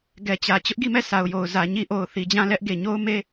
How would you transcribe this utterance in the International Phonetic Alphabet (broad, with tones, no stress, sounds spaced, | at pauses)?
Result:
ɡ ɛ˨ t͡ɕ ä˨ t͡ɕ ʊ˦ ʔ ɡ i˦˨ m ɛ˦˨ sʰ a˨ ʊ̯ j o˨ ʊ̯ z ä˨ ɲ i˦ ʔ o˨ ʊ̯ θ i˨ d͡ʑ ã˦˨ l ɛ˦ ʔ ɡ e˨ ɲ o˦ ʊ̯ m e˦